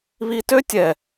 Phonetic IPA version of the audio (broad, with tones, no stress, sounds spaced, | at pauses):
β i˧ t ø˦ tʲ ɛ˨